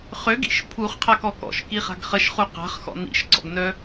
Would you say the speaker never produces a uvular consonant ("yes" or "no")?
no